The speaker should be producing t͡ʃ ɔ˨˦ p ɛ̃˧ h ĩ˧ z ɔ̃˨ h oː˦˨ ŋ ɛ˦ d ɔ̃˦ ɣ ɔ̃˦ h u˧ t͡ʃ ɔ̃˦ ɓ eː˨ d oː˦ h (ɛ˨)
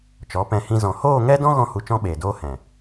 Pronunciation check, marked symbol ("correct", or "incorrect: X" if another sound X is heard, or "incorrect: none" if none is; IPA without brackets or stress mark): incorrect: ɛ̃˨